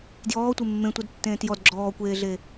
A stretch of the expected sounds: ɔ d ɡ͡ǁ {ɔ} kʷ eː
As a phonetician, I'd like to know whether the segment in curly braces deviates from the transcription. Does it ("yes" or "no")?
yes